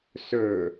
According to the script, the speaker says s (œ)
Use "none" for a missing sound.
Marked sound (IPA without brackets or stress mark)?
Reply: ɵ